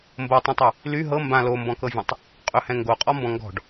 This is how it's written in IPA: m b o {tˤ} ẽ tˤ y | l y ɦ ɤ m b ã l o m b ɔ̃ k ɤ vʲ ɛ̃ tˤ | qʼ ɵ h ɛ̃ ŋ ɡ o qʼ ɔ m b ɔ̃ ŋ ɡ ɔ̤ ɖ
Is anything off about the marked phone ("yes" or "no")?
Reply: no